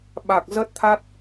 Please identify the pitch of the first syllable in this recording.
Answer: low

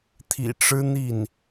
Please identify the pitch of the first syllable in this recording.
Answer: low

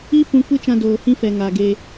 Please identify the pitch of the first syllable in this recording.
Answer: high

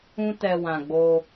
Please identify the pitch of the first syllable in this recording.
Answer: high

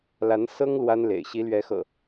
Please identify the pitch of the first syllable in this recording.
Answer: rising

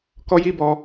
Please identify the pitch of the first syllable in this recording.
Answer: high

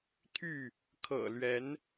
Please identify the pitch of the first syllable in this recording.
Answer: falling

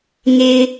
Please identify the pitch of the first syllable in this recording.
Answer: low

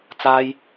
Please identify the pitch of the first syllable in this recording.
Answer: low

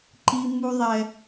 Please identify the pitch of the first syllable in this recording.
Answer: high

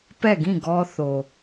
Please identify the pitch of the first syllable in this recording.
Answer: falling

